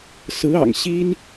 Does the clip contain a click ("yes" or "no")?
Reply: no